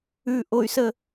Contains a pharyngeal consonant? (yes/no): no